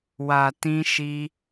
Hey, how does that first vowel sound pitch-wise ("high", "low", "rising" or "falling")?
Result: low